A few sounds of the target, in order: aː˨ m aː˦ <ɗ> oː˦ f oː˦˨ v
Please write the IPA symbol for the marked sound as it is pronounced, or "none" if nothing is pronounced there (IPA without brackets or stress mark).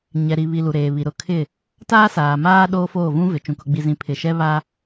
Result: ɗ